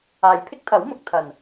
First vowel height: low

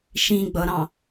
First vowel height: high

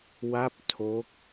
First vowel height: low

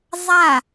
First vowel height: low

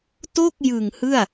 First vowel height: mid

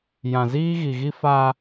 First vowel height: low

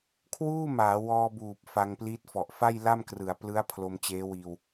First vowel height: high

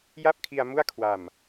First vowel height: low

